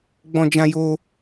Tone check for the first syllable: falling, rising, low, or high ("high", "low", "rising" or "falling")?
high